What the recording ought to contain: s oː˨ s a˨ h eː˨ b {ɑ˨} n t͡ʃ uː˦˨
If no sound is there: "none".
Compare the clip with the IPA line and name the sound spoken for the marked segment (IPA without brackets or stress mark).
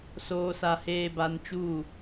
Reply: a˨